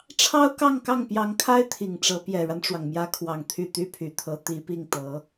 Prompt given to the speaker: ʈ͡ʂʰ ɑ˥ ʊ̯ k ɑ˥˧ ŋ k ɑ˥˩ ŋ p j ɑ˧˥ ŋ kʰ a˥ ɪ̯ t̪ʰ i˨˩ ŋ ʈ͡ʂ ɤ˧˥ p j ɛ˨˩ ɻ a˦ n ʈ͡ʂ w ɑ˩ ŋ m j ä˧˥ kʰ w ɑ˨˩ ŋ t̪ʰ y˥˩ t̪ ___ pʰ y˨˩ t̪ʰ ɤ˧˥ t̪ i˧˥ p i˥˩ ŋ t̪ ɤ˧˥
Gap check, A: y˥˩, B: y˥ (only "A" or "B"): B